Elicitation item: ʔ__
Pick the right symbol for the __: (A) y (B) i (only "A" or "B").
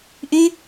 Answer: A